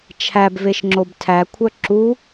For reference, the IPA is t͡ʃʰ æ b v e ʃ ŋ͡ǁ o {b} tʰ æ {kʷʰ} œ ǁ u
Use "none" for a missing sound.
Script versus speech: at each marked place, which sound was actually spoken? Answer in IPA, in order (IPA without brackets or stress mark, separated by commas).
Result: b, kʷʰ